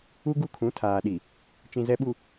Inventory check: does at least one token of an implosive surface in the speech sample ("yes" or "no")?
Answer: yes